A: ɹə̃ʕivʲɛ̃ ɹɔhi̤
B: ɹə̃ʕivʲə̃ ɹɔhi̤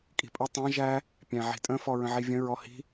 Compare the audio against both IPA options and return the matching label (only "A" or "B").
B